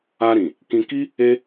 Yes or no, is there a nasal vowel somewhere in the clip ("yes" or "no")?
yes